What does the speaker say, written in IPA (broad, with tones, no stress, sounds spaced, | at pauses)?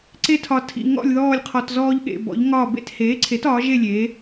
ǀ e˥ tʰ ɒ˧ tʰ ḭ˧ ŋ ɔ̰˥˧ lʲ ð ɔː˥˧ lʲ qʰ ɔ˧ t z ɔː˥ ʎ ɠ ḛ˧ b ɔ̰˨˥ ʎ ŋ ɒː˥˧ b ḛ˥˧ t h eː˨˥ ǀʰ e˨˥ t ɒː˨˥ ʒ e˥˧ lʲ eː˨˥